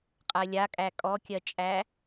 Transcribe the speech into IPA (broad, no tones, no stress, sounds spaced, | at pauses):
qʼ ɜ lʲ a kʼ æ kʼ ɔ kʲ ɜ t͡ʃʼ æ